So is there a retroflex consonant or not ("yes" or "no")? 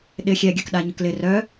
no